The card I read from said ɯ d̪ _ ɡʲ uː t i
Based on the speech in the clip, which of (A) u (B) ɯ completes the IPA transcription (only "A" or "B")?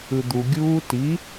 A